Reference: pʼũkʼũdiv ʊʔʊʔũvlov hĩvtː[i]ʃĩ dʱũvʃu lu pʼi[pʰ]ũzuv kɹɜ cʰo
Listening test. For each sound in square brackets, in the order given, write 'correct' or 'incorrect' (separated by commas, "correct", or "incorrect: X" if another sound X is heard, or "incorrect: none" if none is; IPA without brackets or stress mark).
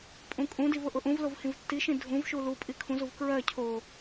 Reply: correct, incorrect: kʰ